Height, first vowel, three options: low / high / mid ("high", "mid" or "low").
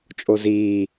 mid